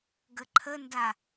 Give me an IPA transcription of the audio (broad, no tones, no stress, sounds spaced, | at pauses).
ɡ ə ǃʰ ə n d a